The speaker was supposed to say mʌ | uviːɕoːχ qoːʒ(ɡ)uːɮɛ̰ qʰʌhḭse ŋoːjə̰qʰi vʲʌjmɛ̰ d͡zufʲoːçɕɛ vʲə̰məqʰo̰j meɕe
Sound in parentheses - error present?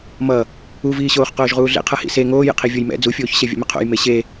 yes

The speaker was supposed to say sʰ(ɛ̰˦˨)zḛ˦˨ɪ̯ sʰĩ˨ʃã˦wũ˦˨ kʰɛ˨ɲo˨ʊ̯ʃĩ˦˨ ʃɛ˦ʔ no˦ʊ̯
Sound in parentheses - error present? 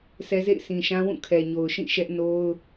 yes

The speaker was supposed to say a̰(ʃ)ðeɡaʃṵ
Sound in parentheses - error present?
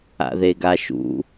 yes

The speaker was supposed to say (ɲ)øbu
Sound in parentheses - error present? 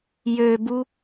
yes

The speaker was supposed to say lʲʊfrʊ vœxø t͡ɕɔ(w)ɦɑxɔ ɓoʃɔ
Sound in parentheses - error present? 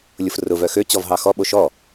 yes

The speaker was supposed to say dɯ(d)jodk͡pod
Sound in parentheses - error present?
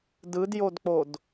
no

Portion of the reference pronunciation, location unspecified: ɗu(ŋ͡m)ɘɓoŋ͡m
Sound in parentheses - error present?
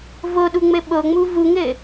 no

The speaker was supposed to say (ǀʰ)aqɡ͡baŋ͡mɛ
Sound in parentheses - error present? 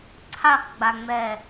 no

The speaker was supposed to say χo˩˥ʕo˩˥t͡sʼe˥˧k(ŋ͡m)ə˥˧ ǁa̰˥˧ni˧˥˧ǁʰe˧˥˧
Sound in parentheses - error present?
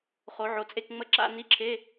no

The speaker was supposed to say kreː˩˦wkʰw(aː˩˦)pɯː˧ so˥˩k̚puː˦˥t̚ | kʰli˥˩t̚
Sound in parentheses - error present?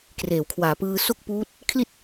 no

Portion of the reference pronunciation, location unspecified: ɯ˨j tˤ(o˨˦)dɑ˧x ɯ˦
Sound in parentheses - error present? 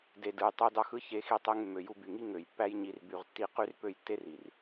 yes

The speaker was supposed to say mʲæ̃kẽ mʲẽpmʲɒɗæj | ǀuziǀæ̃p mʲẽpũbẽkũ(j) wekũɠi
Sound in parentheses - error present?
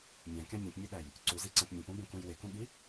no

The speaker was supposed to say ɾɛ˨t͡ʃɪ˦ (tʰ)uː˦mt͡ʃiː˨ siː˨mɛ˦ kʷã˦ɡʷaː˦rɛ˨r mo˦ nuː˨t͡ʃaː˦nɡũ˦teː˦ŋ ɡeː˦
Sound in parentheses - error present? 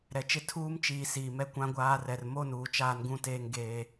no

